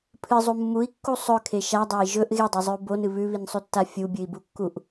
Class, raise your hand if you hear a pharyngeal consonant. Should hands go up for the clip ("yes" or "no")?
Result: no